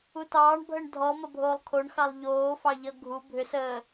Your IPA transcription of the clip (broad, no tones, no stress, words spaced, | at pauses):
utɑːɳbʱəɳ dʱɔmʌ bʱoːlˠkʰoɳxɑlˠ ʎoːfɑʎʌ ɡʱu bʱʏsəː